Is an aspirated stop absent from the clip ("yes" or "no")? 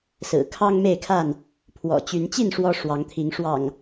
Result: no